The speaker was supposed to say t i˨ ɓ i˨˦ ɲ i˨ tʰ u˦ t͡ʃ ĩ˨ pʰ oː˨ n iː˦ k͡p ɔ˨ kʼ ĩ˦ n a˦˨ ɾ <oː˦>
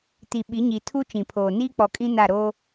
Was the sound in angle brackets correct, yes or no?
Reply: yes